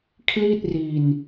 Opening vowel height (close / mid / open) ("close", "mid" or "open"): close